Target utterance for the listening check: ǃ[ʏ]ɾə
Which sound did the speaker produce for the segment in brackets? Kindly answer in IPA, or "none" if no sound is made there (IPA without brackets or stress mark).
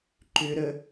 ʏ